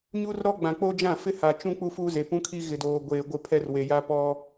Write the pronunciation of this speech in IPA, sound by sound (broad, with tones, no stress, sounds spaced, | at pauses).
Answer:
ɲ u˦ r ɾ ɔ˦ ɡ͡b ã˨ k͡p o˦ d͡ʒ ã˦˨ f ɪ˦ h a˨ t͡ʃ ũ˦ k͡p u˦ f uː˦ z e˨ p ũ˦ kʰ i˦ ɣ ɪ˨ d oː˨ ɡʷ eː˨ ɡʷ ɪ˦˨ pʰ ɛ˦ r w e˨ j a˦ p ɔ˦